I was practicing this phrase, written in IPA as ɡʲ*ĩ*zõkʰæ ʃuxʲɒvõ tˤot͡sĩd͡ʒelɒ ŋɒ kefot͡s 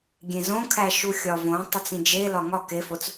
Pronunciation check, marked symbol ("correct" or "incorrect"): incorrect